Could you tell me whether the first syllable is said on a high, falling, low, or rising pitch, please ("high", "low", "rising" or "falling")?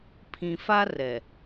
low